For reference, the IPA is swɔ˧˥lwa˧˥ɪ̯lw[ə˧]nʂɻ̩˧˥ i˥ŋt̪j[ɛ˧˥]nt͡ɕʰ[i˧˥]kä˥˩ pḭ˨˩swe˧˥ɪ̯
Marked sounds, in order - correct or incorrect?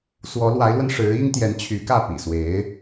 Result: correct, correct, incorrect

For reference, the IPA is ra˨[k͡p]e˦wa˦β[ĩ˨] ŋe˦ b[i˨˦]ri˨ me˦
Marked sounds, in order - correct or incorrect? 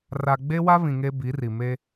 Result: incorrect, correct, correct

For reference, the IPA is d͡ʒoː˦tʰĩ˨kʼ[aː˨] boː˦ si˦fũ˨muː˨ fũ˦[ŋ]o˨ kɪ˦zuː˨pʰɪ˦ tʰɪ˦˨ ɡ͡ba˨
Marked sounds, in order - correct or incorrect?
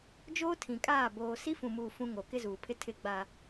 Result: incorrect, correct

